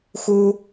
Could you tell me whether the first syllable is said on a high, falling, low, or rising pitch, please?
high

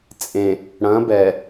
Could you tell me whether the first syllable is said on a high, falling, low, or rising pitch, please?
low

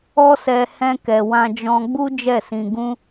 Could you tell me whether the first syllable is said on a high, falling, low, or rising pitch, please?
high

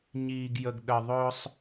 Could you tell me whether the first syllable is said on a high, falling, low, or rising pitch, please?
low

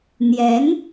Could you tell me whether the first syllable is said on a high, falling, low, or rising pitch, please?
rising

